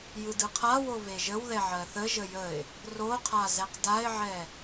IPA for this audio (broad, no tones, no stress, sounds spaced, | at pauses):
j ɯ d ɯ qʰ a w o v e ʒ ə w ð ɛ ʕ ɜ θ ə ʒ ə j ə ɪ̯ | r o qʰ a z ɛ q d a ɪ̯ ʕ ɛ